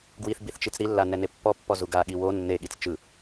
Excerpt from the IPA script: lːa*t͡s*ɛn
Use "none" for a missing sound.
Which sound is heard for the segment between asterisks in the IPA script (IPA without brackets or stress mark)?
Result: n